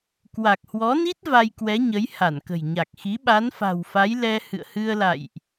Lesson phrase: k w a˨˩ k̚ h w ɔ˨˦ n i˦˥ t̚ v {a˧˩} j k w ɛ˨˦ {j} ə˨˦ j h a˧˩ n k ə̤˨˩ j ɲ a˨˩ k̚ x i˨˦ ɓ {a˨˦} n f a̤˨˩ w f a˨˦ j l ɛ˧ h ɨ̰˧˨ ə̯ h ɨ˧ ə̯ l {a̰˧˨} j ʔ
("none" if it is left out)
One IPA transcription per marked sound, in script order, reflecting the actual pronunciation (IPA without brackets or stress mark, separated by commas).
a˧, ɲ, a˨˦, a̰˧˨